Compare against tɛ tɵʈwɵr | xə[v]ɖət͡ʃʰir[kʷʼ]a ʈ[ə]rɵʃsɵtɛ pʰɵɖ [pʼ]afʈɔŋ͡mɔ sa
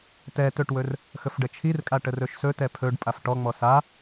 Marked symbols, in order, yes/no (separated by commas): no, no, yes, yes